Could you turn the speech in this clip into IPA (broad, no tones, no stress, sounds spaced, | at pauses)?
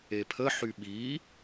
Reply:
e pʰ ə ħ y ɓ i